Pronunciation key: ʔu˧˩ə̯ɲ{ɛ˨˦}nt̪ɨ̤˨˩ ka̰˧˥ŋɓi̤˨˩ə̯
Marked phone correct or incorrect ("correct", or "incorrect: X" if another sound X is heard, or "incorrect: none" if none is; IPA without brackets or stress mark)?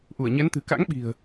correct